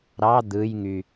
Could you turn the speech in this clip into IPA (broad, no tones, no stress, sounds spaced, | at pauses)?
ɾ ɑ d̪ ɯ j ŋ y